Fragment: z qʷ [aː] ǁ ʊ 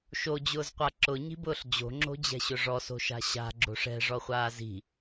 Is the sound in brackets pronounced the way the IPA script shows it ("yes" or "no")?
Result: no